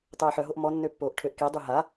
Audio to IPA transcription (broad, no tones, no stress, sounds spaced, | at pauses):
tˤ øː ħ œ ɦ o ʔ m ɔ nː ø pː oː ʔ ʈʰ ø ʔ k i dˤ u ɦ a